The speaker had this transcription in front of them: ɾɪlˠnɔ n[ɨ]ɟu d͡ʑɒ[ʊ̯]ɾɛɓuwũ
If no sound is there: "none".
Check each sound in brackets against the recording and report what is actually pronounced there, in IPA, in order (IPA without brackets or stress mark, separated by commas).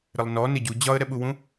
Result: ɪ, ə̯